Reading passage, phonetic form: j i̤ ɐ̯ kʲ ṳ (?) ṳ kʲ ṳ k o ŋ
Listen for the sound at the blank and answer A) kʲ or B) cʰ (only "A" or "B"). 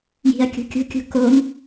A